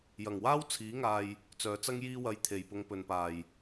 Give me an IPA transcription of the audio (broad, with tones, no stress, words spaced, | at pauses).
jɐ˨˩ŋwaː˥w t͡sʰiː˨˥ŋaː˨j | t͡sœː˨t͡sɐ˥ŋ jiː˥wɐ˧j t̪ʰe˨jpʊ˧ŋ pɵ˨npaː˨˩j